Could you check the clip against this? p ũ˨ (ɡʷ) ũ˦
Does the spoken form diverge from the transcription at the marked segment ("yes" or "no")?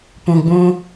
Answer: yes